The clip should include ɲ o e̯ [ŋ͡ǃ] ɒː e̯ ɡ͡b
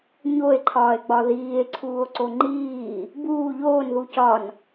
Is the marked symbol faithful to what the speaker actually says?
no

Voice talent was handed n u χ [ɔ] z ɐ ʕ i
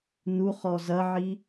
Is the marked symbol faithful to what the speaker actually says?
yes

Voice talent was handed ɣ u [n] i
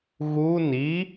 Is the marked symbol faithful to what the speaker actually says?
yes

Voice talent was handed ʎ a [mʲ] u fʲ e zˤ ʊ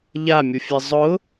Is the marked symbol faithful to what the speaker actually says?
yes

